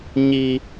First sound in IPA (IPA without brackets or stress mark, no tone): ɲ